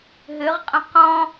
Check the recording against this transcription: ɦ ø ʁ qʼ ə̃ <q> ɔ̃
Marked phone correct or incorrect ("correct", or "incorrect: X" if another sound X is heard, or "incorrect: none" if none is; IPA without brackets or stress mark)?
correct